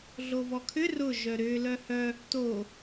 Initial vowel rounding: rounded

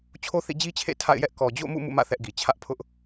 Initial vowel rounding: rounded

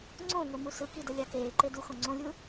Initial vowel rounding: rounded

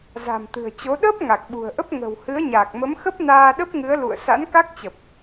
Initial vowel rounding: unrounded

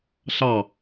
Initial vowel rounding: unrounded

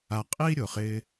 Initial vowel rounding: unrounded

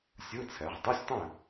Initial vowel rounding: unrounded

